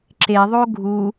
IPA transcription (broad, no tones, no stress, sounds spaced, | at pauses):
ǁ e ðˤ o ɡʱ u